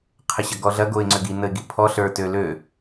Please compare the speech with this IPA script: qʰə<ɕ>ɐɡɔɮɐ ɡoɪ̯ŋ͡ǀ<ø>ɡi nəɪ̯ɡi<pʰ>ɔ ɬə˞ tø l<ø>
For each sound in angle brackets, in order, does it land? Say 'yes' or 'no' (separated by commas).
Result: yes, yes, yes, yes